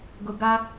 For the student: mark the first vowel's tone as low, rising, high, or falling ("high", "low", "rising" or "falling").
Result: low